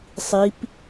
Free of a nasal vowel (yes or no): yes